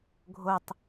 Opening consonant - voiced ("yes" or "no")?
yes